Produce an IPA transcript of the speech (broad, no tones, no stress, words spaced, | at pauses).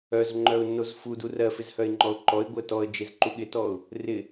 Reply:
œzŋ͡ǃœʊ̯ nːozfudu rɜfɪz hœɪ̯ŋ͡ǃɔʊ̯ǃɔɪ̯ ɡʷɪə̯tɔə̯ d͡ʒezǃuɠɪtɔʊ̯ | rɪ